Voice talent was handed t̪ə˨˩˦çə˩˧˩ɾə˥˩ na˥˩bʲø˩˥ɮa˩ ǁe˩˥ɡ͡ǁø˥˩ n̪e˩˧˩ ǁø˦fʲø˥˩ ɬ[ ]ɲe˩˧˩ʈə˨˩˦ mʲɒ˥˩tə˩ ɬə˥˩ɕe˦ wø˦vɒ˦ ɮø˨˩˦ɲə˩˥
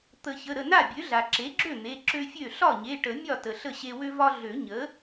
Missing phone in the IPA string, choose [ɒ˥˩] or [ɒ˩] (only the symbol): ɒ˥˩